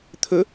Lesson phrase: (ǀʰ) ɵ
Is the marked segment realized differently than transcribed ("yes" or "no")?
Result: yes